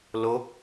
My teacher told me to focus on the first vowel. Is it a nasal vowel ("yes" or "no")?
no